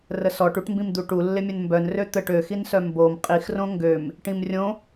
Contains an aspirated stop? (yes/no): no